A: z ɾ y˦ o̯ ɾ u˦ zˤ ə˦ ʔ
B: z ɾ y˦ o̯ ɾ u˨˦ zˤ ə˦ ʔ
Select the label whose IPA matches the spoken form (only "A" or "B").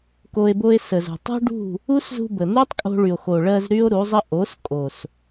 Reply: B